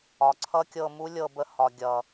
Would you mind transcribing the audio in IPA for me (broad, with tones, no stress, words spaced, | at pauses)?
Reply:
ɒ˨ǀʰʌ˦kʲɤ˧mu˦ lʲɤ˧bə˧hɒ˨ɡʲʌ˨